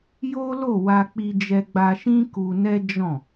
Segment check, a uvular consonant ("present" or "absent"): absent